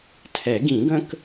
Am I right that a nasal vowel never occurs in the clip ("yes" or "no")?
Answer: no